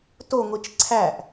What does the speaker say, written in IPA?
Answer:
toŋʷit͡ʃ ǀʰæʔ

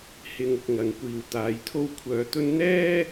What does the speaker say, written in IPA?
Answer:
hɪ˧ŋʊ˧k̚ ŋɐ˨˧ŋkʷiː˧w t̪aː˨˧jt̪ʰo˥w kʷʰœː˧t̪ɵ˥n n̪ɛː˥

